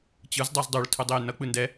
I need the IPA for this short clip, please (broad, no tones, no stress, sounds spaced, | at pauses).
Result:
t͡ɕ ɯ z dˤ a z dˤ u ɭ tʰ ɯ dˤ e j n ʌ k͡p ɯ n d ɛ